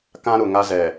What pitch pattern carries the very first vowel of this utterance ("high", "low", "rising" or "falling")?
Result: high